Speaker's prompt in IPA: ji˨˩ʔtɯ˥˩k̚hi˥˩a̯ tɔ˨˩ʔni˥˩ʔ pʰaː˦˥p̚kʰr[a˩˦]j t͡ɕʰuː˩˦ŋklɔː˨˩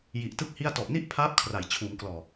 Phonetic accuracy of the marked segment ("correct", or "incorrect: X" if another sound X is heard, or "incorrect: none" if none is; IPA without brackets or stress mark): correct